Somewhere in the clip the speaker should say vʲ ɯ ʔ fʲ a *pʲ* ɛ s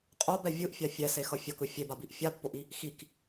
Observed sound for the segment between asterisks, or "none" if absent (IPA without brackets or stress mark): fʲ